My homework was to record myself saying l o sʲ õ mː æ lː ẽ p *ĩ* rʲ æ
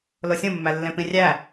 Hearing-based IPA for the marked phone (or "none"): ĩ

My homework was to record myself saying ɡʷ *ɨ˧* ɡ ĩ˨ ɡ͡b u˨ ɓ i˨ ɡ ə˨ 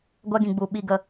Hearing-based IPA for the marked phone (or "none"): ɛ˧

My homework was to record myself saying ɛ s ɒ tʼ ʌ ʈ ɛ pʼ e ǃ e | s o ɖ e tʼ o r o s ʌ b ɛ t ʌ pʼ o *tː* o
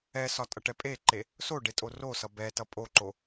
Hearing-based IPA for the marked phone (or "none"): ǃ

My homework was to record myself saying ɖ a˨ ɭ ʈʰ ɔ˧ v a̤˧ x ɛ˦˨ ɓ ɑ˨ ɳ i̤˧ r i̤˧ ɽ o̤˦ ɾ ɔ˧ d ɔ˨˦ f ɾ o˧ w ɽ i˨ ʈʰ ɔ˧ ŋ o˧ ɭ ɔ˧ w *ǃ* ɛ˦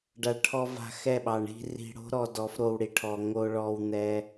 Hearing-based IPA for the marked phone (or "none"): n̪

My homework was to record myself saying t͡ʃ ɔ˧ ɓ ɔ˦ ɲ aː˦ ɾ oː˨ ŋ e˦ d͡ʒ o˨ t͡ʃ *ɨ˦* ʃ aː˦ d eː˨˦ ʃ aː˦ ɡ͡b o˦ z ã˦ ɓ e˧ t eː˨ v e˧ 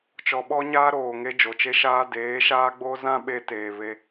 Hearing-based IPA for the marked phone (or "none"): e˦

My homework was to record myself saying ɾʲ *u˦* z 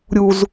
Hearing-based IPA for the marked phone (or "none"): u˦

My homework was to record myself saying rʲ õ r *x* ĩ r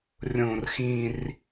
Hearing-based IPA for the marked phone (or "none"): x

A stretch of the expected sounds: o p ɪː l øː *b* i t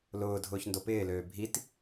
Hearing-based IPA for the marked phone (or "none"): bʱ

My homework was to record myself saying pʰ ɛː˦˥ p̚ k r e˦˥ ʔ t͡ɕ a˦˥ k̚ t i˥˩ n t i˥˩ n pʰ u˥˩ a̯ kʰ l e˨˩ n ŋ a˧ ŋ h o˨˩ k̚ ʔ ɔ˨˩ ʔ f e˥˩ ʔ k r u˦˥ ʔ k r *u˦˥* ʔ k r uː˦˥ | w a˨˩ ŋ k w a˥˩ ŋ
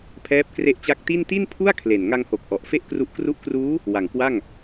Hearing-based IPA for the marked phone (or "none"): u˦˥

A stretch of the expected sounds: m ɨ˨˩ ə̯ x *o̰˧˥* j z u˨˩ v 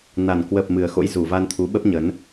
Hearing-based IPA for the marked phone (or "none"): o̰˧˥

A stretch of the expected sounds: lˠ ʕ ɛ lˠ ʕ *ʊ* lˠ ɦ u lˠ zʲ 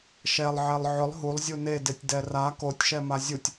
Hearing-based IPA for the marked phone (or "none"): ʊ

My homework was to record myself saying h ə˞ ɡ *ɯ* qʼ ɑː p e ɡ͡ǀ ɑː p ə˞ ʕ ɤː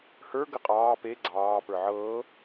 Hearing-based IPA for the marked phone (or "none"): ə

